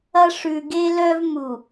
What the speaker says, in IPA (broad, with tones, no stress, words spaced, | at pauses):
ɐ˦ ʂʉ˨ɡe˦lœ˦vmu˨